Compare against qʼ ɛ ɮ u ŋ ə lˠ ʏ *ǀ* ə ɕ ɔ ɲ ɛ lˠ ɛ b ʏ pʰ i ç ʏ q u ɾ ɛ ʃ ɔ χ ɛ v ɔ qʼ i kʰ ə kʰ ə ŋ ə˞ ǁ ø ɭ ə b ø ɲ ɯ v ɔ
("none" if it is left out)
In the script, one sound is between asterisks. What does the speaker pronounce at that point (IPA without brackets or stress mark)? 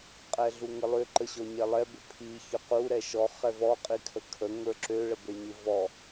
ǃ